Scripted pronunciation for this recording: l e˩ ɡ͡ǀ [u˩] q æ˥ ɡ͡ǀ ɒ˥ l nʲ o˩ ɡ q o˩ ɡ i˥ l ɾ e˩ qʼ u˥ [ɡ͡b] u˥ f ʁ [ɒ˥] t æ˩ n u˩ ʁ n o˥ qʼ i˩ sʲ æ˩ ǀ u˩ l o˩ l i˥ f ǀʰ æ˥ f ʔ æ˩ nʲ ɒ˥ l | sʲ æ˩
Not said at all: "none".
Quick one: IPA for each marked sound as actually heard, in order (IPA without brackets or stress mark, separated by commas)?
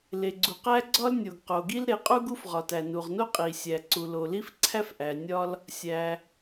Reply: u˩, ɡ, ɒ˩